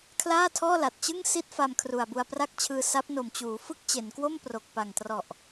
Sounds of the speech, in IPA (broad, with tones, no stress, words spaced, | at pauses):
kʰlaː˥˩tʰɔː˥˩la˨˩t̚ t͡ɕɯ˥˩ŋsi˦˥t̚ fa˧mkʰru˨˩a̯bu˧a̯pra˥˩k̚ t͡ɕʰɯː˧sa˦˥p̚no˨˩m t͡ɕuː˩˦fɯ˦˥k̚ t͡ɕe˩˦nkwo˥˩m pro˨˩k̚pa˨˩ŋ trɔ˨˩ʔ